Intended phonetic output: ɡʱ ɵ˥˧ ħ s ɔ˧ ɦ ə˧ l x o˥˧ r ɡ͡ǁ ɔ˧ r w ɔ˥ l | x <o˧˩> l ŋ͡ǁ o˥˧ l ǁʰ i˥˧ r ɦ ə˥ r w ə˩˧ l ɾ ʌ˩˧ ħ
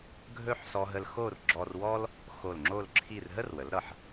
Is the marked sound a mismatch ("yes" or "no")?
no